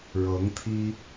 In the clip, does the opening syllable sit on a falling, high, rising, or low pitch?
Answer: rising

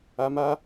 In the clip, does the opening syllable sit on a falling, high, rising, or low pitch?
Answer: low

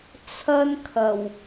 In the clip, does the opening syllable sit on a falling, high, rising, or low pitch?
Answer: high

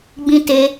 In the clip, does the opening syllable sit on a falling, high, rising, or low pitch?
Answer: high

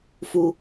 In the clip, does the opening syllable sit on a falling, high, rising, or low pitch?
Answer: low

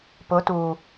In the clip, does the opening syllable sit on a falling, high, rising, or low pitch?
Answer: rising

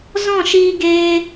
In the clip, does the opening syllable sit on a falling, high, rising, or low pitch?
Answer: falling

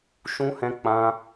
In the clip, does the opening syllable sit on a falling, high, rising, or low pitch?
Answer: high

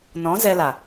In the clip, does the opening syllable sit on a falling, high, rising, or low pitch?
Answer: rising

